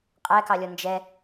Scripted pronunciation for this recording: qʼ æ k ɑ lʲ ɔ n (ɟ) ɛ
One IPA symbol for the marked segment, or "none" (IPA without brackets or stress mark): d͡ʒ